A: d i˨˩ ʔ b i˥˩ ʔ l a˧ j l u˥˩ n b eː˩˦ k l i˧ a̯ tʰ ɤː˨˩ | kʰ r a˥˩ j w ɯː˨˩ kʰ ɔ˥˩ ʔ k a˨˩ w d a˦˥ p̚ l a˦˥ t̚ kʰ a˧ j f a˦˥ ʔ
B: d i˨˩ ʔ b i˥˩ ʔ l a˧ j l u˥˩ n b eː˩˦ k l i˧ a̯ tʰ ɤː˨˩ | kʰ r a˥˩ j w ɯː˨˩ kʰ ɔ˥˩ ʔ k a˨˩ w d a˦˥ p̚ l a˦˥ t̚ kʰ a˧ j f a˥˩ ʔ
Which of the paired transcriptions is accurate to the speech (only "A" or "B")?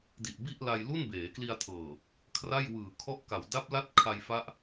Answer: A